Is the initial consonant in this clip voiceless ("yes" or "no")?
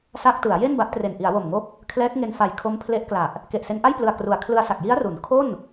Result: yes